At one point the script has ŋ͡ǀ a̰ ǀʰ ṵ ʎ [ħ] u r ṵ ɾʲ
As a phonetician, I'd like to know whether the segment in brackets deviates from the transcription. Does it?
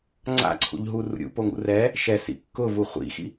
yes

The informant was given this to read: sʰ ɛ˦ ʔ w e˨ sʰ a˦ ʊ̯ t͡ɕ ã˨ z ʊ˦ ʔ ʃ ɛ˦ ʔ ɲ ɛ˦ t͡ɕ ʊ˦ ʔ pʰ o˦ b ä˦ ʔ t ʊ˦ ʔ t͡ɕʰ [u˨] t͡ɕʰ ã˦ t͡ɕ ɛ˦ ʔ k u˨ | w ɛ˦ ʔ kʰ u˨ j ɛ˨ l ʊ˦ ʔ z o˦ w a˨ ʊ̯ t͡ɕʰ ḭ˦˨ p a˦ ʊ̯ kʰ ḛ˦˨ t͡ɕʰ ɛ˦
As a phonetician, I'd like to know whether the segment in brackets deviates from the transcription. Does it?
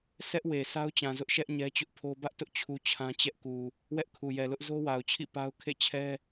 yes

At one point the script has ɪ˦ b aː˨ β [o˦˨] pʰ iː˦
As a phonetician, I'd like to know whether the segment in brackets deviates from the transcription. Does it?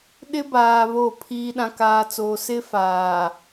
no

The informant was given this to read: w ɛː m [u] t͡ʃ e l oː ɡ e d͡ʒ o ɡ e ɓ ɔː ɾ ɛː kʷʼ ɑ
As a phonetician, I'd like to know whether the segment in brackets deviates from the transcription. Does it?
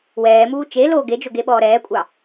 yes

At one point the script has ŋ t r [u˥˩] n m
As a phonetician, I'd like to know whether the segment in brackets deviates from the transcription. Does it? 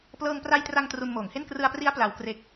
yes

